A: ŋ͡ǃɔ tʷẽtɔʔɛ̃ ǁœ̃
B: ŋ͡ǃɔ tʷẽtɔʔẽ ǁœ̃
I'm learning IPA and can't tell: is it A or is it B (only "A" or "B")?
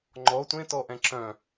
A